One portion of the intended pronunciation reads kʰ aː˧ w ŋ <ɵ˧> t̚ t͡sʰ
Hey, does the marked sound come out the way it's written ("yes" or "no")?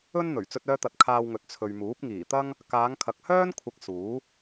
no